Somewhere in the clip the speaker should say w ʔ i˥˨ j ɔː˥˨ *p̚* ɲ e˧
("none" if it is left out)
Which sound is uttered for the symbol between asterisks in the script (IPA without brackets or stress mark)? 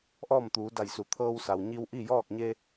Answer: k̚